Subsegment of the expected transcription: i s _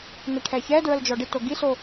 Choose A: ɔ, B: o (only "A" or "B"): B